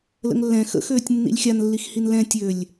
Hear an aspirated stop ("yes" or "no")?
no